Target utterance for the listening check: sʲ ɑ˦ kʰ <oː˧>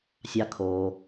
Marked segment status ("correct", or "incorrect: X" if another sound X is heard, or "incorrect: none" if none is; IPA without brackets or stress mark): correct